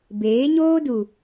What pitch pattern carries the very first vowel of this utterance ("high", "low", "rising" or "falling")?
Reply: rising